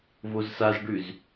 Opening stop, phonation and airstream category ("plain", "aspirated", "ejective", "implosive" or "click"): plain